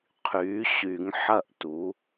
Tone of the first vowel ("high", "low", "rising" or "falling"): rising